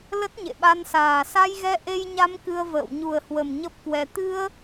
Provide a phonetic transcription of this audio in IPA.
lə˦˥t̚ɲḛ˧˨ɓa˧nsaː˨˩ sa˧jɣɛ˧ʔe˧jɲa˧m kɨ˧ə̯və̰ː˧˨w ɲu˨˩ə̯hwə˨˩m ɲə˦˥p̚kwɛ˧ t̪ɨ˧ə̯

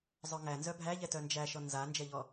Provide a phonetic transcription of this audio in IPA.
zˤœŋænzœ bʱæʎɛtœ nd͡ʒæʃɔ nzand͡ʒɛʎɔ

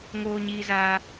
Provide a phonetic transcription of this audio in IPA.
ŋoː˧ɲiː˧zaː˧

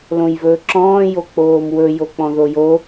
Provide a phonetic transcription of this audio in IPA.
lõjvɵːǁɔ̃ː jok͡poːmwɵ jok͡pɔ̃ðojo

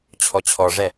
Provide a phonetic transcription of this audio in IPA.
t͡ɕʰɔt͡ɕʰɔʐɛ

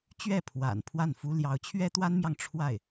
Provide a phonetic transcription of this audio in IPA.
t͡ɕɥɛ˥˩ pʰwa̰˨˩n pʰwa˥˩nfu˥ ljɑ˧˥ʊ̯ t͡ɕʰɥɛ˥t̪wa˥nmjɑ˨ŋ ʈ͡ʂʰwa˥˩ɪ̯

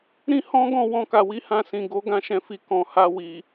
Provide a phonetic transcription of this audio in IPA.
ɾĩ˦hɔ̃˦ɡɔ̃˦˨ wɔ̃˧ka˨wi˨˦ hã˧sĩ˨ ɡo˨˦ ɡã˦ʃɛ̃˧fi˧ kɔ̃˨ ha˧ wi˨

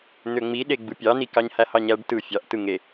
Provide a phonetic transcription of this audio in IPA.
n̪øŋ͡miɗe ɡ͡bɯpʲɑni kɑɲhæhɑɲæɖ tɯ fʲɑʔtɯ ŋe

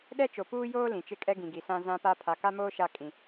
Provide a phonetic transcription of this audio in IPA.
ɗɛ˦t͡ʃo˨puː˦joː˦ lĩ˨t͡ʃɪ˦kʼɛ˦ ɡĩ˨ɡi˨ sã˦zã˦pa˦ pʰa˨ka˦moː˦ ʃa˦kʼĩ˨

